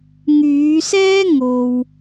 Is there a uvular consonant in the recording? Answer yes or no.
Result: no